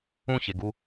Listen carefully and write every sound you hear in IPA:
ũ ç e ɡ u

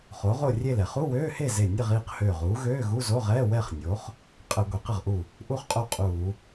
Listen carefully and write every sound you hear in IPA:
χ o˩˥ ʁ o˥˨ rʲ e˥˨ l ɛ˧˩˧ χ u˧˥˧ w øː˧˥˧ h e˥˨ z e˧˩ nʲ ə˥˨ ʁ iː˥˨ q h øː˧˩ ʁ uː˩˥ ɣ øː˧˥˧ ɣ u˧˥˧ z o˧˥˧ ʁ ɛː˧˥˧ w ɛ˥˨ χ nʲ o˩˥ χ | qʼ ə˧˩˧ ɡʷ e˩˥ q ə˥˨ ʁ ʔ u˥˨ | ʔ u˥˨ χ qʼ o˥˨ qʼ uː˧˩˧

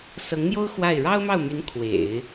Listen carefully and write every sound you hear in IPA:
s ɤ˧˥ ŋ n̪ j o˥ ʊ̯ x w a˥˩ ɪ̯ ɻ ɑ˥ ʊ̯ m ɑ˥˩ ʊ̯ m y˧˥ n kʰ w ḛ˨˩˦ ɪ̯

